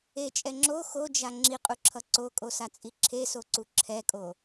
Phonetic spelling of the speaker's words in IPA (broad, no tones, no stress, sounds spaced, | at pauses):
e t͡ʃʼ ɛ ŋ͡ǁ o x o d͡ʒ a ŋ͡ǁ i qʼ u ǁʰ ʌ ǀ o kʼ o s a t͡sʼ i ǁʰ e s o ǀ u ǁʰ ɛ kʼ o